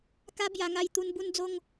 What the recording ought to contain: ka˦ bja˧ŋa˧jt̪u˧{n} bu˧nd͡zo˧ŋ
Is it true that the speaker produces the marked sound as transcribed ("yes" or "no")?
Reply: yes